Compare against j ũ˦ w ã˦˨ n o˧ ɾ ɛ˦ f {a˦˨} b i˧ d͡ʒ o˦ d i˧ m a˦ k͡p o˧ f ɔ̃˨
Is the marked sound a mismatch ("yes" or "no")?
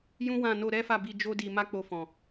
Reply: no